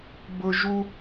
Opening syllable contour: high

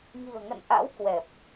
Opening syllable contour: low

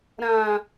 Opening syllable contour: low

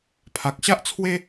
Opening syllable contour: low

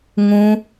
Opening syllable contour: high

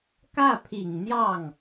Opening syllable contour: falling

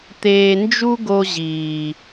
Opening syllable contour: low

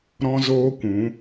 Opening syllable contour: high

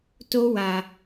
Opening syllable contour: high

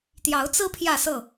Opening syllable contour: rising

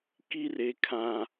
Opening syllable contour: high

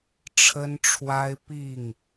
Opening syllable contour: high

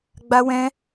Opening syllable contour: high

